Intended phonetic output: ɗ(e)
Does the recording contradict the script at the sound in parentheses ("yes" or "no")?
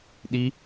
yes